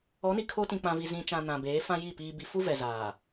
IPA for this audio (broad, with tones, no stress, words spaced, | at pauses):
ɔ˨˦ni˨ kʰo˦tĩ˨k͡pã˨vi˨ zĩ˨t͡ʃã˨ nã˨beː˨˦fã˦ji˦˨ piː˨bi˨fu˦ vɛ˨zaː˨